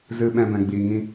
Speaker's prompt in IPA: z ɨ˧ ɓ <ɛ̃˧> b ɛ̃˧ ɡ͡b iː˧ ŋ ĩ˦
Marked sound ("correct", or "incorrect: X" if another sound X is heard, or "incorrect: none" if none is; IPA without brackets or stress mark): correct